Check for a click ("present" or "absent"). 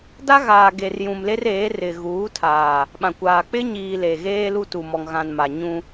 absent